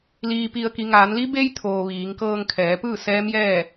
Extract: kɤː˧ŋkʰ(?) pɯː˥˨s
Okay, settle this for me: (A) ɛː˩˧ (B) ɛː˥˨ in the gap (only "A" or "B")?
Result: A